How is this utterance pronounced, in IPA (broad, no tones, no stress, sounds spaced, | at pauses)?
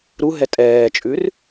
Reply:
ɾ u ɦ ɛ tʼ ɛː t͡ʃʼ ʉ r